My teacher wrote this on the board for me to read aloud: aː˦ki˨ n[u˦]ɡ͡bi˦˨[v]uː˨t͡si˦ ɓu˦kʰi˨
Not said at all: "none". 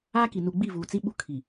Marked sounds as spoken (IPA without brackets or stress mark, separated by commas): u˨, v